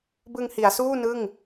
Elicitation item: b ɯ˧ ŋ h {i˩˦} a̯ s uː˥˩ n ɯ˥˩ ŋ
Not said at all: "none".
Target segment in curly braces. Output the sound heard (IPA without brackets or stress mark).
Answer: i˩˦